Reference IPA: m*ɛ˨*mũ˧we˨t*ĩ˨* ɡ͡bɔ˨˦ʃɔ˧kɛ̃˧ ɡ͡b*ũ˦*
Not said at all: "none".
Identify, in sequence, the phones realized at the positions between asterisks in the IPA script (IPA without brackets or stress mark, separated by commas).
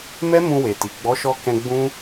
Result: ɛ˦, i˨, ũ˦